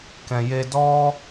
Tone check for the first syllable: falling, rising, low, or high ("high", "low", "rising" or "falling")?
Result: low